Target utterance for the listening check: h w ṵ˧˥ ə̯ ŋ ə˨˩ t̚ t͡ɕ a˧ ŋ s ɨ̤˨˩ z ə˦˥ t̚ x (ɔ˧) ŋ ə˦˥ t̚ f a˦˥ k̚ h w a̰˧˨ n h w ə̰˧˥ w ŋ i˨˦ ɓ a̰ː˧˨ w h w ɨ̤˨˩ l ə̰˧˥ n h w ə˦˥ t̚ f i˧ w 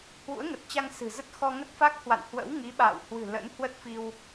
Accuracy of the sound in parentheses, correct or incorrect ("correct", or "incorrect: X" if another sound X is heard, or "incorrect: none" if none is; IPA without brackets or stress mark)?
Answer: correct